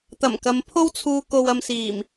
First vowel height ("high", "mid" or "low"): low